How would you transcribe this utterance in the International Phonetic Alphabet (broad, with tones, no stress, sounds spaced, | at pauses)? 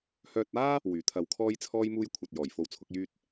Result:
h œː˧ t̚ aː˥ | w yː˨˩ t̪ʰ ɐ˧ w kʰ ɔː˥ j t͡sʰ ɔː˥ j m uː˥ j kʷʰ ɐ˧ t̚ j ɔː˨˩ j f o˧ w t͡sʰ ʊ˨˥ k̚ j yː˥ t̚